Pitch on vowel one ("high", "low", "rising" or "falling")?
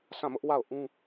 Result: falling